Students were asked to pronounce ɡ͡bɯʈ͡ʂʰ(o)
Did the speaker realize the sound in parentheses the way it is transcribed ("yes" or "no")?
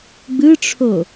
yes